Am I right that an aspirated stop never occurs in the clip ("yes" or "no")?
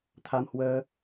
no